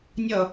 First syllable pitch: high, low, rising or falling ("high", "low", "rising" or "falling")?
falling